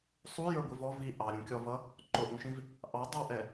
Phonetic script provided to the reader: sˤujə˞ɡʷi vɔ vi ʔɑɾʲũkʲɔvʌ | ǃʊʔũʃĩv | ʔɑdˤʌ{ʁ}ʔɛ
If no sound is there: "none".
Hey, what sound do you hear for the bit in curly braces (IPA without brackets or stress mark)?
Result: w